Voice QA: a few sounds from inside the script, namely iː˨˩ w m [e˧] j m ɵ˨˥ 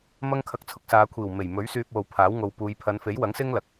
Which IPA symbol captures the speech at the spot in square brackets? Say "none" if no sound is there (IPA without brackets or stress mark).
e˨˩